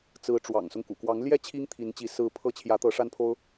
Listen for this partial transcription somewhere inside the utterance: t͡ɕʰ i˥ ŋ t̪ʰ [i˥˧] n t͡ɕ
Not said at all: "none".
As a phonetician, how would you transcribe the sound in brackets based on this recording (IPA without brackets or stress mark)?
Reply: i˧˥